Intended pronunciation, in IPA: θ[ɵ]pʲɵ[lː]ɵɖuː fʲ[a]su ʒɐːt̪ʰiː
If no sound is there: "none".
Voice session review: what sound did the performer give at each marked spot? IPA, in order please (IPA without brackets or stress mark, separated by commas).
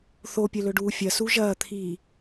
o, l, ɐ